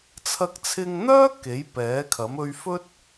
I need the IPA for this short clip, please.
t͡sʰɐ˧k̚t͡sʰɪ˧ŋn̪œː˥ ke˨˥jpɛː˨˥kʰɐ˨˥m ɵ˧ɥfɵ˥t̚

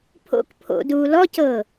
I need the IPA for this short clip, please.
pʰo̰k pʰo̰duː lɔcɤː

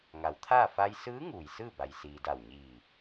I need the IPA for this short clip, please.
ŋa˩˧wt̪ʰaː˥˨ fa˧jsɯː˧˥ ŋuː˩jsɯː˥˨ba˩j siː˩da˧˩wɲiː˧˩

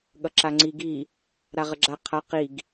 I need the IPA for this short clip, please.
ɠʌǁaŋ͡ǀi ɡi | ɾaʁəɡ͡ǁa qʰa qiɡ

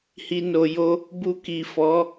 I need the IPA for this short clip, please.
hi˨no˨jo˧ | bu˧ki˨ fɔ˨˦

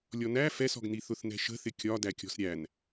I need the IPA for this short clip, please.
lʲɔnæ fɛsɔ̤ɡni θʊθnɛ̤ʃə̤θɪ kʲɒ dækʲɔ̤sɾʲæn

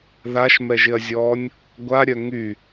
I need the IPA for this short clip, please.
ðaʃmɛʒɪɐ̯zʲɔːnʲ | ɡʷaɾʲœ ŋy

